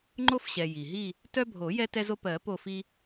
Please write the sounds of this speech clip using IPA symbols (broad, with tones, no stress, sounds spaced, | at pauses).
ŋ͡ǃ o˦ f ɕ ɛ˩ j i˩ ɦ i˦˨ | t œ˦ bʱ o˨˩˦ j ɛ˦ t ɛ˦ z o˦ p ɜ˨˩˦ p o˦˨ f i˦